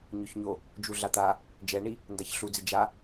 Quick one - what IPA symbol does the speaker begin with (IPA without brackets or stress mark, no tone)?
ɲ